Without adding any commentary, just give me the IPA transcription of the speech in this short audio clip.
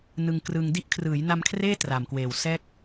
n ɯ˧ ŋ k r ɯ˧ ŋ d i˦˥ ʔ kʰ r ɯː˩˦ j n a˧ m kʰ r eː˥˩ t r a˨˩ m k w eː˨˩ w s ɛː˥˩ k̚

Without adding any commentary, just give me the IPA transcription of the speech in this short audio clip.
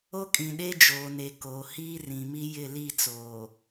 o˦ kʼ ĩ˨ ɗ e˦ d͡ʒ oː˨ n e˨ k oː˨ h iː˦ r ĩ˨ m i˦ j ɪ˦˨ l i˦˨ t͡s oː˨

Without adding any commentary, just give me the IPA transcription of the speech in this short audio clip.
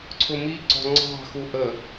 ǀʰ ʊ m i ǀ ɔ̤ ŋ͡ǀ ɑ̤ x u ʔ ə

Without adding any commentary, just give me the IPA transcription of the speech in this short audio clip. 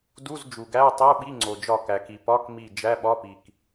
d u˧˥˧ z d͡ʒ u˩ ɡ æ˧˥˧ ʊ̯ tˤ i˧˥˧ ʊ̯ ɓ i˧˥˧ ŋ͡ǀ o˩ d͡ʒ ɒ˧˩ k æ˩ k i˩ p ɒ˧˥˧ k m i˧˩ d͡ʒ æ˧˥˧ ɓ ɒ˧˥˧ p i˩ k

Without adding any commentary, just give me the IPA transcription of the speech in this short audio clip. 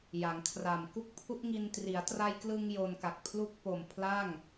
j a˩˦ ŋ kʰ r a˨˩ m k u˦˥ k̚ pʰ u˦˥ ʔ ŋ i˧ n t r i˩˦ a̯ t r a˧ j k l ɯ˧ ŋ j o˧ n k a˨˩ k̚ pʰ l u˥˩ k̚ p o˨˩ m pʰ l a˥˩ ŋ

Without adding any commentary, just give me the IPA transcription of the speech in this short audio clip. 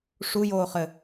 ʂ u j oː χ ɘ

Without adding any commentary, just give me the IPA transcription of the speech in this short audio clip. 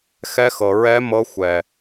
x ɛ˦˥ x ɤ˧ ɹ ɛ˦˥ m ɤ˦˥ xʷ ɛ˧

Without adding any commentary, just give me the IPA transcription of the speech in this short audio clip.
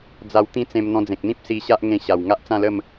d͡z a˧ w t̪ ĩ˥˧ t͡s ẽ˧ m n̪ ɔ̃˧ d͡z ẽ˨ k̚ n̪ ĩ˦ p̚ s i˧ ɕ a˦ ʔ ŋ ẽ˧ ɕ a˨˩ w ŋ a˦ ʔ t͡s ã˥˧ l ə˥˧ m

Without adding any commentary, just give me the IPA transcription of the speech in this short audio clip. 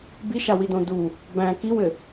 b i ʃ a w i d õ d u | b æ̃ k i w ɘ

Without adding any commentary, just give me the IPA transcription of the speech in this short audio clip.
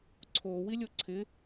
ǀʰ o w i lʲ o ǀʰ ɪ

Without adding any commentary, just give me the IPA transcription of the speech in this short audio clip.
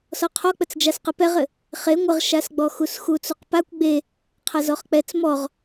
s ɔ qʰ ɔ k͡p ə t͡s d͡ʒ a s q ə p ɛ ʁ ɘ | χ e ŋʷ ə ʁ ʃ a s ɡ͡b ɔ x u s x u t͡s u q p a kʷ ɡ͡b e | qʰ a z ɔ χ k͡p ɛ t͡s m ɔ ʁ

